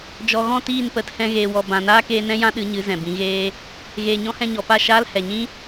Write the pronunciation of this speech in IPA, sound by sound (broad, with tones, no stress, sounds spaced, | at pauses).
d͡ʒ ɔ˨ ɣ ɔ̃˦˨ t iː˦˨ n p ə˨˦ t h ɛ̃˧ ɣ eː˨ w ɔ˨ b ã˨ n aː˦ k eː˧ n ɛ̃˦ j ã˦ ɗ ɨ˨˦ ɲ ɨ˨˦ z ɛ̃˨ b ĩ˨˦ ɣ eː˦ | ɣ eː˨ ɲ ɔ̃˧ h ɛ̃˧ ɲ ɔ˨ p a˦˨ ʃ aː˦ l h ɛ˨ ɲ ĩ˦